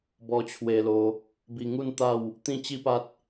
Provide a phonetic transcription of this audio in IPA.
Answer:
b ɔ˧ t͡ɕʰ w e˧ l o˧ | b i˧ ŋ u˥˧ n t̪ a˥˧ w | t̪ ĩ˥˧ t͡ɕ i˦ p a˦ t̚

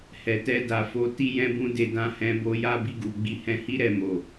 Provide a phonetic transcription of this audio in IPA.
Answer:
h ɛ˨ t ɛ˧ d a˨ f o˨˦ t i˦ j ɛ̃˦ b ũ˦ d e˧ d ã˧ h ɛ̃˧ b o˧ j a˦ b i˧ ɡ u˨ ɡ͡b i˧ h ɛ̃˧ h i˦ ɾ ɛ˧ m o˨

